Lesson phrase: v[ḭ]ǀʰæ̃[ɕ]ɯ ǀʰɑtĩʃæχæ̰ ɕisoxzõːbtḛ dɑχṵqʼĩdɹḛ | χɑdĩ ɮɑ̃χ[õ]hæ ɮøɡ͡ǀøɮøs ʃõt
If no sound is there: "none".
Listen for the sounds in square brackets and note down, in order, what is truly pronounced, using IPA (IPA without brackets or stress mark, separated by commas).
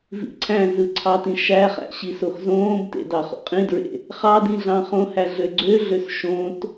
ḭ, z, õ